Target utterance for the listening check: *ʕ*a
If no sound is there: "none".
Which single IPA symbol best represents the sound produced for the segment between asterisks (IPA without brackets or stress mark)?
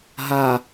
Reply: ɦ